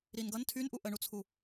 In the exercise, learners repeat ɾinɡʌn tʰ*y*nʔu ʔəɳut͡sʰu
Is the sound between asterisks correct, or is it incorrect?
correct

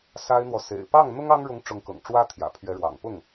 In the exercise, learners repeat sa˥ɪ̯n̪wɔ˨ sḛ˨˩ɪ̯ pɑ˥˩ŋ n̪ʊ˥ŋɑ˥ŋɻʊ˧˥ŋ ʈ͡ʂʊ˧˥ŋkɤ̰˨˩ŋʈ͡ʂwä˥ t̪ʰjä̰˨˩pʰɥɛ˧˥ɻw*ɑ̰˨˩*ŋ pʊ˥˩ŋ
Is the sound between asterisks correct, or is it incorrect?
correct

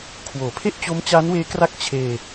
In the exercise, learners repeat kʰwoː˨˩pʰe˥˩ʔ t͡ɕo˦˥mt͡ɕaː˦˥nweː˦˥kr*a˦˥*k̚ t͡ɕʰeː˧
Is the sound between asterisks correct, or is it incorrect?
correct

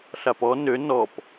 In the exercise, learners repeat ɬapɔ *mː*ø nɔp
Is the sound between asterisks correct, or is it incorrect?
incorrect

